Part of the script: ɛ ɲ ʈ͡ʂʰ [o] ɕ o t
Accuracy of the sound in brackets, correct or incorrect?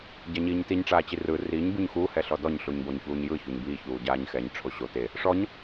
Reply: correct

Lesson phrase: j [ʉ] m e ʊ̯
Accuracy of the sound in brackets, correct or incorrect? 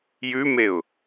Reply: correct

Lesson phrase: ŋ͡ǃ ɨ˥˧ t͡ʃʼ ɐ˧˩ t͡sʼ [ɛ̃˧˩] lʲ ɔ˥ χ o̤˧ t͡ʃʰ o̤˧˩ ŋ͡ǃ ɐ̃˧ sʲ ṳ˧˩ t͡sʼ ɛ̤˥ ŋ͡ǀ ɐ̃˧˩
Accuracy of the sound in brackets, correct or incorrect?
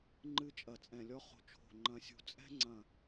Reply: correct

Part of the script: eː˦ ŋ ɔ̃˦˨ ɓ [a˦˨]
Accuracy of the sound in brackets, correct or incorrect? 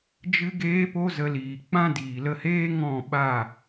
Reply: correct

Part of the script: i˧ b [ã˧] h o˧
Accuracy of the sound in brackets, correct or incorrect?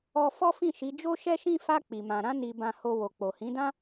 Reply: correct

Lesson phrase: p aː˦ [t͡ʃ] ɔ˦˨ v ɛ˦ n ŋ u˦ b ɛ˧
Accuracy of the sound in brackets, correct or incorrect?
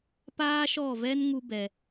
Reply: incorrect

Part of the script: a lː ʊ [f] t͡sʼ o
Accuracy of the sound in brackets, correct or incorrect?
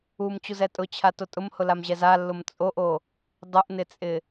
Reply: incorrect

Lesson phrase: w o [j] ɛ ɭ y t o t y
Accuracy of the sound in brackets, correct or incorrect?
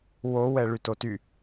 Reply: incorrect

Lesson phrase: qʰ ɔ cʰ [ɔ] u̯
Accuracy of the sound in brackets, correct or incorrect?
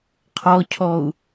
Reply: correct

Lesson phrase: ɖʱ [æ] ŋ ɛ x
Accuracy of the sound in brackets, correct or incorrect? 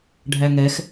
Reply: correct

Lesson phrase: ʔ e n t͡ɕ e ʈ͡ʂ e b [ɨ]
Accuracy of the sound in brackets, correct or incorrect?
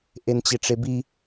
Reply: incorrect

